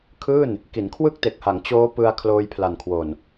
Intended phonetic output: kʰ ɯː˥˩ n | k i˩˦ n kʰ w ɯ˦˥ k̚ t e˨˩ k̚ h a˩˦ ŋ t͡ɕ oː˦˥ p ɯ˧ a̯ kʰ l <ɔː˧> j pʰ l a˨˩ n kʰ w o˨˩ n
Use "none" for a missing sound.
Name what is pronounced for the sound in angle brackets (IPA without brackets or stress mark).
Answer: oː˧